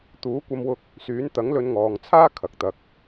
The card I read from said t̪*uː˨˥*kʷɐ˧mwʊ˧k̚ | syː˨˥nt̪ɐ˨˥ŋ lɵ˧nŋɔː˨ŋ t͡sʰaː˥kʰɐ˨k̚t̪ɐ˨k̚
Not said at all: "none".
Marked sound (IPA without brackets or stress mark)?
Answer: uː˨˥